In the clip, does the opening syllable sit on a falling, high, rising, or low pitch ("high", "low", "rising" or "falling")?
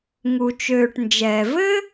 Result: low